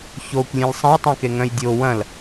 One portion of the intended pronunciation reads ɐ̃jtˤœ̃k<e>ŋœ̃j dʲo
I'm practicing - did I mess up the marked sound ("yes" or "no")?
no